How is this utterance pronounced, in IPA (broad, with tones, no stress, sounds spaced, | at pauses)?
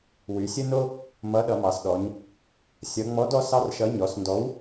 w y˩˧ sʲ ə˦ n o˦ | m ʌ˨˥ ɗ ʌ˩˧ m ɑ˩˧ s ɗ ɔ˩˧ ɲ | sʲ ʌ˩˧ ŋ͡m ɔ˨˥ d ɔ˦ s ɑ˦ r ʃ ʌ˨˥ ɲ ɔ˩˧ s n d ɔ˨˥ w